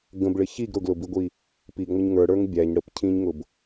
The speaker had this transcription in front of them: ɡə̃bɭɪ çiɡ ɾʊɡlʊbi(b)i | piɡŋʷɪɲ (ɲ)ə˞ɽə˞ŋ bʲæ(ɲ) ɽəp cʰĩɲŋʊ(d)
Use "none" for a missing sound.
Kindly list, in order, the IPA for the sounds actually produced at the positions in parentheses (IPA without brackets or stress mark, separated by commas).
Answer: ɡʷ, ŋ, ɲ, b